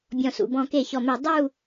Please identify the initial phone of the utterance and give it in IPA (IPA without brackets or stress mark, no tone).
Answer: bʲ